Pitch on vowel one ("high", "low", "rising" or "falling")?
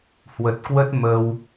low